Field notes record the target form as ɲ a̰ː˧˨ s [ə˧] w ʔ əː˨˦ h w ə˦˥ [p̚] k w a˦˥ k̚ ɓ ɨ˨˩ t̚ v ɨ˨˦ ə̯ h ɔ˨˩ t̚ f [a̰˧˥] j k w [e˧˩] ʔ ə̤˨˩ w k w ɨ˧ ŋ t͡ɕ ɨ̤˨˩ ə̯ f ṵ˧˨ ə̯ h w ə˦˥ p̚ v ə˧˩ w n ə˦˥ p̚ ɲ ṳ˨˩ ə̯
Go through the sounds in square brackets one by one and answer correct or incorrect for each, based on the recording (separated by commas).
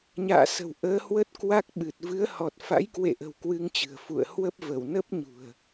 incorrect, incorrect, correct, incorrect